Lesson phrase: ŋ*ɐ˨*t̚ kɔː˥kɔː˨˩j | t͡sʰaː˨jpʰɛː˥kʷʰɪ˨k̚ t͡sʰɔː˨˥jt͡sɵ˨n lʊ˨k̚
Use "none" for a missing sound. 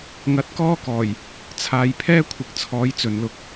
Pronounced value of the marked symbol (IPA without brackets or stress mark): ɐ˧